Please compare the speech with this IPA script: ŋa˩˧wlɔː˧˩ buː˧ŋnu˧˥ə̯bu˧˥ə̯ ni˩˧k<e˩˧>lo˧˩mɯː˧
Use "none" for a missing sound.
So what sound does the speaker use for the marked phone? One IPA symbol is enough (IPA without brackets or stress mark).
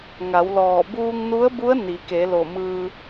e˩˧